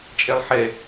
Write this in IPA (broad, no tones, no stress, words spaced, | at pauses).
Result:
t͡ʃʼɛlˠħɛ